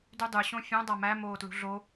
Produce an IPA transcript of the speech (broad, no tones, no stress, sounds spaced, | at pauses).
d y dˤ y ɕ õ fʲ õ dˤ a m æ m oː t l ṳ ɮ o